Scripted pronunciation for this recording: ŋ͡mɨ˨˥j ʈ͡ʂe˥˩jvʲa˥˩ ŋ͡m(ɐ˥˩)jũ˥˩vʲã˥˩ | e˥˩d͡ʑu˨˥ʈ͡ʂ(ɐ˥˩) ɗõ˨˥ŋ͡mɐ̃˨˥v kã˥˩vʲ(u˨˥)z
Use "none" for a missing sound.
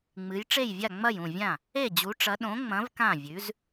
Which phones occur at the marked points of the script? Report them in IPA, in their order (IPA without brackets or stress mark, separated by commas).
ɐ˥˩, ɐ˨˥, ʉ˨˥